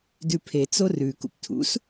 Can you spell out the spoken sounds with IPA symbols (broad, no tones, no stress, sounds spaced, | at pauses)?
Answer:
d ʉ pʰ e t͡s o r ʉ k ṵ p tʰ ṵ s